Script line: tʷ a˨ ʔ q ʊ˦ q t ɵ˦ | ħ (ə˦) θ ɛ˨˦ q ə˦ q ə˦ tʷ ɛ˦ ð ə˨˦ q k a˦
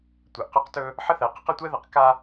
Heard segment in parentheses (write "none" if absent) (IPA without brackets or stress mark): ə˦